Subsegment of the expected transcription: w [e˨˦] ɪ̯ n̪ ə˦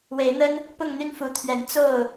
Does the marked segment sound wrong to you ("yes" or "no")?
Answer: no